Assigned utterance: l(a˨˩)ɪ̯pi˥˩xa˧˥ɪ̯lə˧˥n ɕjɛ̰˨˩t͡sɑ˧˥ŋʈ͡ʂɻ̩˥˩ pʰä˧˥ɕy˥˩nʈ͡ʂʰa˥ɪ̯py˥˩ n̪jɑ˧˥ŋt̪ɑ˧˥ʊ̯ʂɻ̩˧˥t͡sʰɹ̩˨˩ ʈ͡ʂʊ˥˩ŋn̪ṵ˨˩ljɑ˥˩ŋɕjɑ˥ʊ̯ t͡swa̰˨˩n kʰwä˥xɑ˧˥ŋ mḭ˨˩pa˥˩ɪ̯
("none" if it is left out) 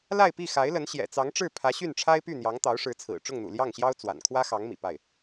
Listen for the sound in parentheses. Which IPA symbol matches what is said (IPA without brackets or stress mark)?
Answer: a˥˧